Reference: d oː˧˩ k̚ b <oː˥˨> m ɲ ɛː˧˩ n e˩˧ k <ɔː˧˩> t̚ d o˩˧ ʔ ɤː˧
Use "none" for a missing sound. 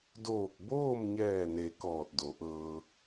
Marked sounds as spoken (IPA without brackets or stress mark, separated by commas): oː˥˨, ɔː˧˩